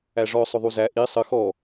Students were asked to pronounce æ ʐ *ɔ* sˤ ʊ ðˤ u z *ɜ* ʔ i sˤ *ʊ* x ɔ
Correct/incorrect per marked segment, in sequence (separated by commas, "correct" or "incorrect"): correct, incorrect, incorrect